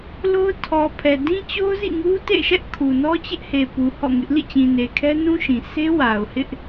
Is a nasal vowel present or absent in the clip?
present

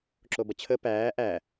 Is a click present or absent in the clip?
present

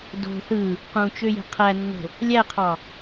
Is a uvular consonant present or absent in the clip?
present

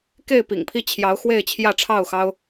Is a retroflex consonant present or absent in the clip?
present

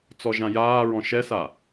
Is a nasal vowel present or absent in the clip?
present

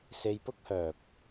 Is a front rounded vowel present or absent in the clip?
present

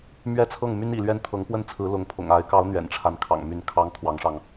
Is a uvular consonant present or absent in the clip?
absent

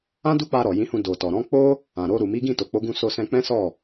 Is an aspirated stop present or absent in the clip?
absent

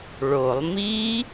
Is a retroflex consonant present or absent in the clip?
present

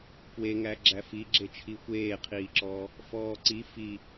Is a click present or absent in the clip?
present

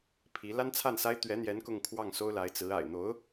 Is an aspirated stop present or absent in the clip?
present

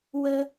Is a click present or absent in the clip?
absent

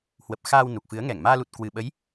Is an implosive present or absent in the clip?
present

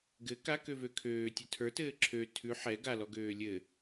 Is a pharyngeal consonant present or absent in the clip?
present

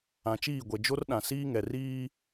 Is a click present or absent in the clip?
absent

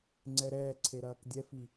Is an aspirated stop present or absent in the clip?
present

